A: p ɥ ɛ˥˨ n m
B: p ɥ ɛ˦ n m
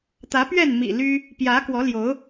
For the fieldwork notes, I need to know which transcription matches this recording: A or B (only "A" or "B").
A